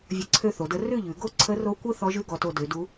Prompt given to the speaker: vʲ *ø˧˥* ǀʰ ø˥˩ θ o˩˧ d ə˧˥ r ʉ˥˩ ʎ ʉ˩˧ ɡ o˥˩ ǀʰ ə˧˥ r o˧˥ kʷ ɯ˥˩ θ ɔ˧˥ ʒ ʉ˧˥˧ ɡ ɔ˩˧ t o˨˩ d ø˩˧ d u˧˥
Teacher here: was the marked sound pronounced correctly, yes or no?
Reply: no